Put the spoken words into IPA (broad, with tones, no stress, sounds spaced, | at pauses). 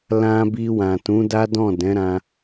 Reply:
l ã˧ b i˧ w ã˨ t ũ˨˦ d a˦ d ɔ̃˦˨ d ɛ̃˨˦ ɾ ã˧